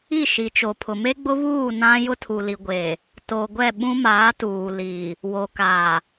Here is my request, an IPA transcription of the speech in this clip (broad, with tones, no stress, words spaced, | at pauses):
i˦˨ʃi˨t͡ʃo˨ pʰʊ˨me˦ɡ͡bʊ˦βuː˦˨ nã˦ jʊ˦tʰu˨li˨ɡʷeː˨ | to˨ ɡʷɛ˦˨ɓũ˦maː˨˦ tuː˨ liː˨ | wo˨kaː˨